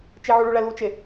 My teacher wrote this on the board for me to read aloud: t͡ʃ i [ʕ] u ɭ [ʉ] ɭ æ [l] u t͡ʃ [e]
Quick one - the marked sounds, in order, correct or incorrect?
correct, incorrect: u, correct, correct

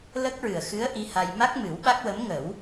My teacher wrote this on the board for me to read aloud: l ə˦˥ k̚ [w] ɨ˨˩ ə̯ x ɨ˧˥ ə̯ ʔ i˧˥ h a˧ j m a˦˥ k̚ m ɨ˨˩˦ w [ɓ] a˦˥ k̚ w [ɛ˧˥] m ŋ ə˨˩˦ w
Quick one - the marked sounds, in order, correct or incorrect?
incorrect: ɹ, correct, incorrect: ə˧˥

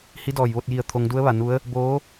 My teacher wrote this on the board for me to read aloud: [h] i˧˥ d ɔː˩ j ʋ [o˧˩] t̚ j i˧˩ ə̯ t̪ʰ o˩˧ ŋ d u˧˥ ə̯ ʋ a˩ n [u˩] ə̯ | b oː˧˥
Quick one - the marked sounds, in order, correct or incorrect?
correct, incorrect: o˥˨, incorrect: u˧˥

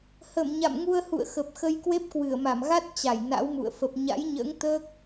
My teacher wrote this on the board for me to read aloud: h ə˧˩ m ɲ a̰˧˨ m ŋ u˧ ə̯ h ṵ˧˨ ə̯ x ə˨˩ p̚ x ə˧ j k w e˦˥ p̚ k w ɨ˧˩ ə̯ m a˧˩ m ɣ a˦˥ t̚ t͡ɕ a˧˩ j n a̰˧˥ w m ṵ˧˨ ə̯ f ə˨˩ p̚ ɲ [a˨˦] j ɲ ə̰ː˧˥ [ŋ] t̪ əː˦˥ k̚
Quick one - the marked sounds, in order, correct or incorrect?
incorrect: a̰˧˥, correct

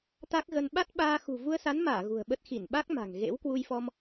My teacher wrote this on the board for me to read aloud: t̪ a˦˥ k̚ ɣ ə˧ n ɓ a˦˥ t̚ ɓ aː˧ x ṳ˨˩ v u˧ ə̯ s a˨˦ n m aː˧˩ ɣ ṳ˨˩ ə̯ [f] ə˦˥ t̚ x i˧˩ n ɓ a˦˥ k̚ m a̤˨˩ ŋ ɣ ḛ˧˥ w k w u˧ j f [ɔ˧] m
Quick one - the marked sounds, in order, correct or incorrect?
incorrect: ɓ, correct

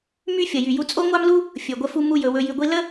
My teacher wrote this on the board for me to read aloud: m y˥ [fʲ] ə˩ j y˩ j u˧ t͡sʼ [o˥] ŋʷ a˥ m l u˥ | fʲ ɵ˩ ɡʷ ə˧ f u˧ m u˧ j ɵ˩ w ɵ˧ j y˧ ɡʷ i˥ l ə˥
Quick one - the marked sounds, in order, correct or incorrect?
correct, correct

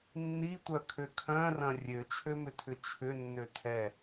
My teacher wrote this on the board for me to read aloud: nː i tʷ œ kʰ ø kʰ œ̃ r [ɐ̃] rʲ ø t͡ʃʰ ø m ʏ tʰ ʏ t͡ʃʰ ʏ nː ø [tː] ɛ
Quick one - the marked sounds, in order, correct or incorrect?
correct, incorrect: tʰ

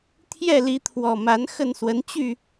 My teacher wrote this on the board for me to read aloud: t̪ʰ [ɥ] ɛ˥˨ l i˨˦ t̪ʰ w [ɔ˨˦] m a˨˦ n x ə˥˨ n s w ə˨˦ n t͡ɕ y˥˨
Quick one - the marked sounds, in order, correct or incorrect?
incorrect: j, incorrect: ɔ˨˩

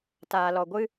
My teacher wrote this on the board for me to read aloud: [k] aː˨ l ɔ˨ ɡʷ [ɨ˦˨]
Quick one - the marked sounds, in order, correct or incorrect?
incorrect: t, incorrect: ɨ˦

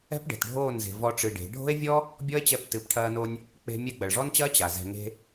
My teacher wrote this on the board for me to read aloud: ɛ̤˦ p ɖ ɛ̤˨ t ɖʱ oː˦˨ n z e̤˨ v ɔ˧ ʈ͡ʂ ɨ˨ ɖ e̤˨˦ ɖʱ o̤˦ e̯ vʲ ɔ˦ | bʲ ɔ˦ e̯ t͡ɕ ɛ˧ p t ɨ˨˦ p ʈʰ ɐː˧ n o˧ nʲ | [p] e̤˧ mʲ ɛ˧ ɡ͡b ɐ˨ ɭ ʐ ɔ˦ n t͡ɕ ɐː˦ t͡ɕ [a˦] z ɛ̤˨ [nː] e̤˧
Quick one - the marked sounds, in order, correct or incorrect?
incorrect: k͡p, incorrect: a˨, incorrect: ŋ

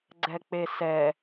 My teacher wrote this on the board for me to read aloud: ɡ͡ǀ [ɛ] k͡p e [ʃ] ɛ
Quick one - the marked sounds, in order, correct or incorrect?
correct, incorrect: s

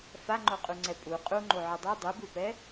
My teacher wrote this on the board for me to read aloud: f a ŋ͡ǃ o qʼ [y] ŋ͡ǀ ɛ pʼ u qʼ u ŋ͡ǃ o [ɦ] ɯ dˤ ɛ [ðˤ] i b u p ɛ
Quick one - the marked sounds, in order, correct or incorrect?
incorrect: u, incorrect: ʕ, incorrect: dˤ

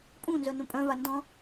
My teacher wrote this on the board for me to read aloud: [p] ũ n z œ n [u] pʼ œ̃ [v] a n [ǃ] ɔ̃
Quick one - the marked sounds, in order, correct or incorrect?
incorrect: pʼ, incorrect: ũ, correct, incorrect: d

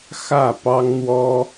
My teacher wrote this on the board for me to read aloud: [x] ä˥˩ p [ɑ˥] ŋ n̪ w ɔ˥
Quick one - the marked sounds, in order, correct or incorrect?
correct, correct

